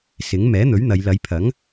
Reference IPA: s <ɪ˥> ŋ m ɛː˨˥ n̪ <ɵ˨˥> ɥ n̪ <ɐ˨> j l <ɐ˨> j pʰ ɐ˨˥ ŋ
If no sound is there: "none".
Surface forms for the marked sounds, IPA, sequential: ɪ˨˥, ɵ˨˥, ɐ˨˧, ɐ˨˧

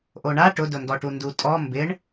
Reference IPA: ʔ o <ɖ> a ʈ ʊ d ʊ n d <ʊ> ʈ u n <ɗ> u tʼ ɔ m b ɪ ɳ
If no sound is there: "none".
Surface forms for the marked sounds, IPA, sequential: ɳ, ɔ, d

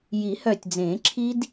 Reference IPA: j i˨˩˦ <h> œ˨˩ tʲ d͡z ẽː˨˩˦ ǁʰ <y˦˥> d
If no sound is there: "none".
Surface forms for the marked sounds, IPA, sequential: h, i˦˥

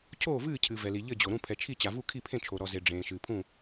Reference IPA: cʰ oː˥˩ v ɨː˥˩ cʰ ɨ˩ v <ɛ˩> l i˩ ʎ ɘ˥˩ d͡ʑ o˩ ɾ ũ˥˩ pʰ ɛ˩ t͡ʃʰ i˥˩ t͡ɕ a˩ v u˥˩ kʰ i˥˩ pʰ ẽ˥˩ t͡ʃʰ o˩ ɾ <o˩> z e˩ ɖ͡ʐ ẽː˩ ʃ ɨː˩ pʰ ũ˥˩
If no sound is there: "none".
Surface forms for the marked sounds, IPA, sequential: ɛ˩, ɔ˩

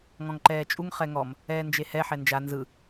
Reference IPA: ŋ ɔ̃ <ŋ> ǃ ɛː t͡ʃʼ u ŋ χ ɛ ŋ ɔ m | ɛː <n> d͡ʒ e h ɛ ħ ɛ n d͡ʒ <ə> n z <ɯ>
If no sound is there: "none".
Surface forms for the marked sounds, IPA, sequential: ŋ, n, a, ɯ

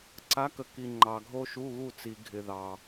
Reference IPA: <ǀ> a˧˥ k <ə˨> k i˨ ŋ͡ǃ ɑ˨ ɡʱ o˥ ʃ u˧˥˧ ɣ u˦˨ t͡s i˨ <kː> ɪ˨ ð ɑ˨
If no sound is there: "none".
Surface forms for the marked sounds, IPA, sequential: ǀ, ə˨, ɡʱ

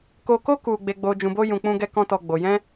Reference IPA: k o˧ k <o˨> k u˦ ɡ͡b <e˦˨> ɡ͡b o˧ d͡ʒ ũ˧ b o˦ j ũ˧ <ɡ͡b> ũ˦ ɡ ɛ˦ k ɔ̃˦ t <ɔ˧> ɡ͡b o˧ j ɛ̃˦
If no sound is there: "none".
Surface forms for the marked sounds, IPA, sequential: o˦, e˧, k͡p, ɔ˦

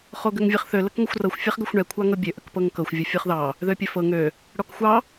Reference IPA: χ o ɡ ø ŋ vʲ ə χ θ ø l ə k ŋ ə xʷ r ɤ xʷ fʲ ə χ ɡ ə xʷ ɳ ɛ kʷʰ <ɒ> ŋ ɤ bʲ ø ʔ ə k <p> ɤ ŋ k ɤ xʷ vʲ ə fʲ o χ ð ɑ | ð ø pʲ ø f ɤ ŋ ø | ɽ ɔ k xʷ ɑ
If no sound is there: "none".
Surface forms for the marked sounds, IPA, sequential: ɑ, p

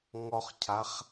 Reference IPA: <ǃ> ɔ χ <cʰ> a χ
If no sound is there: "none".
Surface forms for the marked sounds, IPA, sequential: ŋ, cʰ

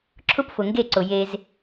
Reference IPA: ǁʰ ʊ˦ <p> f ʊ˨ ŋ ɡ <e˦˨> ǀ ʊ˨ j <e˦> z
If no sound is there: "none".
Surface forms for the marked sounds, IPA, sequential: p, e˦˨, e˦

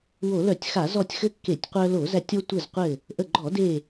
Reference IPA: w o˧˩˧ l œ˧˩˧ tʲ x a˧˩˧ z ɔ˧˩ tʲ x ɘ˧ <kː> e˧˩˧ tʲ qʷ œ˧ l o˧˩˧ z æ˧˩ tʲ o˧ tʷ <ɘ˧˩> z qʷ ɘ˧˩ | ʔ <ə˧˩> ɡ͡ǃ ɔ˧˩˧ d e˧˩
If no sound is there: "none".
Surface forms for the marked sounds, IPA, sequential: kː, ɘ˧˩, ə˧˩

